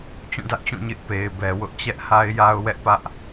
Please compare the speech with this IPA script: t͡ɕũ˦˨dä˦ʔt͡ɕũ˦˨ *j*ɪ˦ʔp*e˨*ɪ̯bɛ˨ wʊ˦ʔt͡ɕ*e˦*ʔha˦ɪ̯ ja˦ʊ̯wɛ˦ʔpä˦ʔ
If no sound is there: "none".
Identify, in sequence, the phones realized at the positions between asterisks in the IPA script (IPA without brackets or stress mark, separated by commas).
ɲ, e˨, ɛ˦